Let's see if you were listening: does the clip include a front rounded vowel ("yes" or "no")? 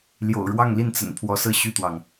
yes